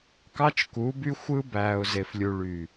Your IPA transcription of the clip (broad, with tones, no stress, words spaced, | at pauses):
kɑ˦t͡ʃku˨˦by˦ xʷɯ˦bæ˨ʊ̯ ze˨flʲu˨ɭy˨